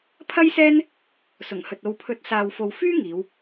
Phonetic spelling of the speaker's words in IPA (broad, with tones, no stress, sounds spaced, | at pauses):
pʰ ɐ˥ j s ɛː˥ n | s ʊ˨˩ ŋ h ɵ˨ t̚ o˨ w pʰ ɵ˨˥ t̚ s aː˨ w f o˨ w f yː˥ ŋ iː˨˧ w